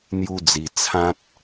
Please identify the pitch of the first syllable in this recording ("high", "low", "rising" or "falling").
high